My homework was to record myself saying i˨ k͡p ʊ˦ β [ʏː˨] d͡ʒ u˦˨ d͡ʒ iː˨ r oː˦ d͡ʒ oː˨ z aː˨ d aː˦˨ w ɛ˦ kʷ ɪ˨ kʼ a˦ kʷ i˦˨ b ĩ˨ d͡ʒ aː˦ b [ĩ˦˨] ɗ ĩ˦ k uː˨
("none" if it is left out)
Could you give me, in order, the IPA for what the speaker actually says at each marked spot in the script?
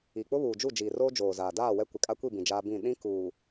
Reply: uː˨, ĩ˦˨

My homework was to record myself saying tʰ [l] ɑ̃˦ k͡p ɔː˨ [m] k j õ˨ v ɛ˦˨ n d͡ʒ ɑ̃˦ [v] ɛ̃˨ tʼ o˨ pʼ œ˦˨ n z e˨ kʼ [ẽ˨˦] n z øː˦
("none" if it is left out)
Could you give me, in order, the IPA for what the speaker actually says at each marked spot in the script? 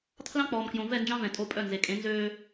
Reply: l, m, v, ẽ˨˦

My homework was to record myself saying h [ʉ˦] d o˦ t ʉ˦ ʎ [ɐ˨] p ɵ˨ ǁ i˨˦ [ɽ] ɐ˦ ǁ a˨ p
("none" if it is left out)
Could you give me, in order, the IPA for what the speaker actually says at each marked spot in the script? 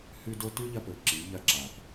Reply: ʉ˦, ɐ˦, ʎ

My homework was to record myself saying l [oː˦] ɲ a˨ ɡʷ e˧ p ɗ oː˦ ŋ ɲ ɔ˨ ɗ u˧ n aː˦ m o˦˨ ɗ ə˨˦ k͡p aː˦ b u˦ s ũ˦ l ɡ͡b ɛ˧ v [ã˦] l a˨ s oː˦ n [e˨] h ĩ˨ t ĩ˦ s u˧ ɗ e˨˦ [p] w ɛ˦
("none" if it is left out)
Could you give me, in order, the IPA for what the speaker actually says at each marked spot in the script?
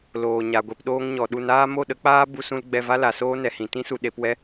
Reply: oː˨, a˦, ɛ˨, p

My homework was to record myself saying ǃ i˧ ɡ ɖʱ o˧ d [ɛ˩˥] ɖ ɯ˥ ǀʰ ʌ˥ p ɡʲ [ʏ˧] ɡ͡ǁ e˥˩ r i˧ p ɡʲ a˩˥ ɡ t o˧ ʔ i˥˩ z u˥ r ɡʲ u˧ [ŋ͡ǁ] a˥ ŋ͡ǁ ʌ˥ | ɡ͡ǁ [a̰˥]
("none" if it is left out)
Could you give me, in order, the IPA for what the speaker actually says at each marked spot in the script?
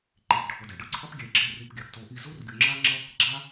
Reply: ɛ˩, ɛ˧, ŋ͡ǁ, a˥

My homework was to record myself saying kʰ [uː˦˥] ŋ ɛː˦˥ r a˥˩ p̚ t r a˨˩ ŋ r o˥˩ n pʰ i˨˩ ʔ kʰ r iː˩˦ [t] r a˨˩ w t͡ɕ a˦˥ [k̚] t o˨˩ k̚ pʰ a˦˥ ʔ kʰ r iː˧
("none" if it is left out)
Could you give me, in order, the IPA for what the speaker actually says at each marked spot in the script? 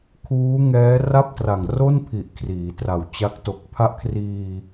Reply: uː˦˥, t, k̚

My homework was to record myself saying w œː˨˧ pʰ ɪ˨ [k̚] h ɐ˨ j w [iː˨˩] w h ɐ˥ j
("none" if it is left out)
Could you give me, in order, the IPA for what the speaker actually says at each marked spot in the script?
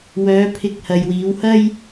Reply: k̚, iː˨˧

